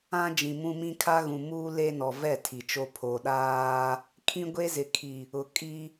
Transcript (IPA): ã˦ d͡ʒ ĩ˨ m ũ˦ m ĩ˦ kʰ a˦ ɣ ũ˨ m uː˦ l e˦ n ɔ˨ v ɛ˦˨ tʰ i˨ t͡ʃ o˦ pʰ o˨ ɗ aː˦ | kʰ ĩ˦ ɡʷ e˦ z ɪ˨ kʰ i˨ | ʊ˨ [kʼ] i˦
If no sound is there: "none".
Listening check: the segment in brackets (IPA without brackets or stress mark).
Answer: kʼ